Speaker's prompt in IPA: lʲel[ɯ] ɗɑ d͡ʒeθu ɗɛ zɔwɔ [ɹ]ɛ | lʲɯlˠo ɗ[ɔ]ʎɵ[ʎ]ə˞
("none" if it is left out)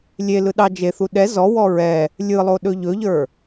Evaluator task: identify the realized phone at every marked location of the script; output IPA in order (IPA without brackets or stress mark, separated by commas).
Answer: ɯ, ɹ, ɵ, ʎ